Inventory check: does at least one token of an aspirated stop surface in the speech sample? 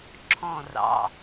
yes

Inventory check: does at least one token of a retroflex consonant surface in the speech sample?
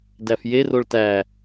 yes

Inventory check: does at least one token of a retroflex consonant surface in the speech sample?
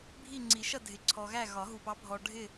yes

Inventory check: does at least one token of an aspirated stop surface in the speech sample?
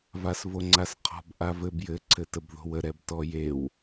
yes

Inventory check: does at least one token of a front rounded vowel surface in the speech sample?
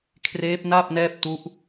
no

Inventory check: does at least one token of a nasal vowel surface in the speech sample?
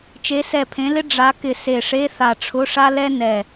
yes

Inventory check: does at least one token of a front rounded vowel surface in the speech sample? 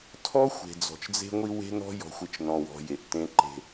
no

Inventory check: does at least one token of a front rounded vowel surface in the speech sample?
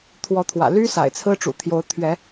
yes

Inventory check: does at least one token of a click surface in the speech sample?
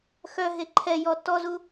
yes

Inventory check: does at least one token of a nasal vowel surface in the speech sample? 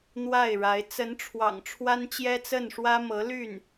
no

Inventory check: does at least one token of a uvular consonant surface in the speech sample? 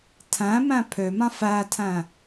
no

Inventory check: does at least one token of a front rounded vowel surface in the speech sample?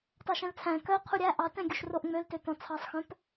yes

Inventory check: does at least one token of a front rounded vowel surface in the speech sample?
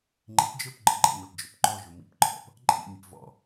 no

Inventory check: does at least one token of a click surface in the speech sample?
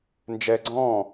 yes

